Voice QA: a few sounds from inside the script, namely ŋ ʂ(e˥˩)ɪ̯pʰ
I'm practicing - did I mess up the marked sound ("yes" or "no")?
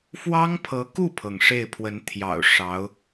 no